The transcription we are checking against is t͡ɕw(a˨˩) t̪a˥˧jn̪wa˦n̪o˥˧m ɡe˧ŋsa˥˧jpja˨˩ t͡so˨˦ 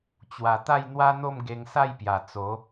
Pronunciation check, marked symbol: correct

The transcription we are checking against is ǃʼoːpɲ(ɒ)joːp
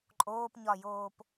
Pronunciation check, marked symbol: correct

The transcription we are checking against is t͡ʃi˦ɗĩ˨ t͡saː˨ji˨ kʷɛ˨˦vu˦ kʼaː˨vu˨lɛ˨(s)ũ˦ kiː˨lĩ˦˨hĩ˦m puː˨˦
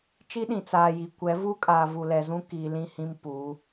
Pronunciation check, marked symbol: incorrect: z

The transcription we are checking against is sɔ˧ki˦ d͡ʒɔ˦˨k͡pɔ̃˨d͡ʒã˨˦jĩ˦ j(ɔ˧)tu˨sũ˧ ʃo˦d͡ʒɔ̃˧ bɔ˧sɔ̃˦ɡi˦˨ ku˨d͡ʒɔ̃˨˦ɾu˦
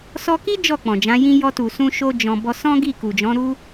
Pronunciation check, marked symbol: correct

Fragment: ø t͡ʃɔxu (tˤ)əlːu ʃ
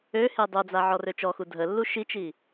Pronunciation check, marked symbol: incorrect: dʱ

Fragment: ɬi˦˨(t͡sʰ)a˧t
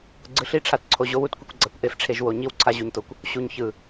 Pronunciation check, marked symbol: incorrect: ʈ͡ʂʰ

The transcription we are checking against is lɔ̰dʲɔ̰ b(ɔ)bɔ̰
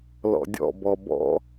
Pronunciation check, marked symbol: correct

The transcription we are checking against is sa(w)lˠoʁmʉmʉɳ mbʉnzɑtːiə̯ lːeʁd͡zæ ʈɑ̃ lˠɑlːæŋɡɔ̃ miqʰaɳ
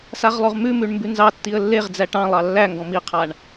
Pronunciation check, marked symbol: incorrect: ʁ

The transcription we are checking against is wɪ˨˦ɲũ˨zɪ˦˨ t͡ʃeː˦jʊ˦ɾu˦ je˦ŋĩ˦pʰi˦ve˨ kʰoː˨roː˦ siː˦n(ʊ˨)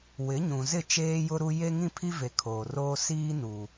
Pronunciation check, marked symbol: incorrect: u˨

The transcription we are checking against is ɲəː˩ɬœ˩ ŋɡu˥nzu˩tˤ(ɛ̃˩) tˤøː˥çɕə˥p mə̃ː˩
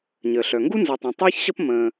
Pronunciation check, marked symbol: correct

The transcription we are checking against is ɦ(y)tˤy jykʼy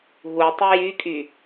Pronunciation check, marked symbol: incorrect: u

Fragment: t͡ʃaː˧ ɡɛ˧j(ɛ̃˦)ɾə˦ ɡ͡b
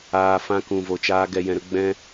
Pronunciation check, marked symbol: incorrect: ɛ̃˧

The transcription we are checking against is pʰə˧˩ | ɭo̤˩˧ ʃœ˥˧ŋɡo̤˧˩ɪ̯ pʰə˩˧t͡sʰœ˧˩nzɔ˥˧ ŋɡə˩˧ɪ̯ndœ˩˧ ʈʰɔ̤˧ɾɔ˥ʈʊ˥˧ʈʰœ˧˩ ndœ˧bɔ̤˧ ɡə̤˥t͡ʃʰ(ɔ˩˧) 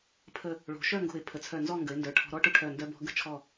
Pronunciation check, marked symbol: incorrect: ɔ˧˩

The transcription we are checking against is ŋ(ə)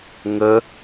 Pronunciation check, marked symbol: correct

